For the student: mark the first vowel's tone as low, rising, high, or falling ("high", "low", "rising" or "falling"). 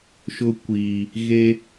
high